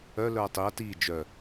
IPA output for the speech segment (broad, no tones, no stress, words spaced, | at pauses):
œ lœɐ̯tˤiɐ̯ ti d͡ʒœ